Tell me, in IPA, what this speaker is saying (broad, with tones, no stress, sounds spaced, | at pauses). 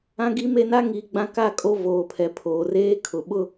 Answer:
ã˦ ɡ i˦ m e˦ n a˦ ŋ i˨˦ ɡ͡b ã˦ k a˦˨ kʼ o˦ v oː˨ pʰ ɛ˨ pʰ oː˨ r eː˦ kʰ ʊ˨ ɓ ʊ˦